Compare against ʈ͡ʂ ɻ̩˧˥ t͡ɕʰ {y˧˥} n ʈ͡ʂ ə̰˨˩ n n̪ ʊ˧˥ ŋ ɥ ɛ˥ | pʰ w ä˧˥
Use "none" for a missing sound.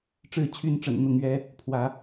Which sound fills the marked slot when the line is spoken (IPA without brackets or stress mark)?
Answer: y˧˥